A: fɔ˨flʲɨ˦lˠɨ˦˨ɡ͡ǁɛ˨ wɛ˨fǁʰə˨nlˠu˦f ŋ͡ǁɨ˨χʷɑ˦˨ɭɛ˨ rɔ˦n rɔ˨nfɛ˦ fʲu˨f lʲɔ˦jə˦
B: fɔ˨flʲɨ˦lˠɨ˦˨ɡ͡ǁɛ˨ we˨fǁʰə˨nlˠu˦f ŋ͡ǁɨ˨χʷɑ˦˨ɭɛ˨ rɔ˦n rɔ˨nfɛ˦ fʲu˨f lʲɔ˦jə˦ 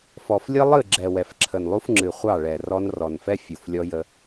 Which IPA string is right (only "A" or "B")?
A